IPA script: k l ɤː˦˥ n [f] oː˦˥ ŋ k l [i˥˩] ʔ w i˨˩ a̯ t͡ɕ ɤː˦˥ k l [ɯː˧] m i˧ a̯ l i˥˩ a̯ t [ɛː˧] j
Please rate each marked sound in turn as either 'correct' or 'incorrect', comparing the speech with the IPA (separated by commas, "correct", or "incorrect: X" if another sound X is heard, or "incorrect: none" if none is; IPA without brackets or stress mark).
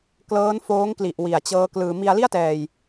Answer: correct, incorrect: i˨˩, correct, correct